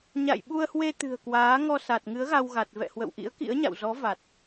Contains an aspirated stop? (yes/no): no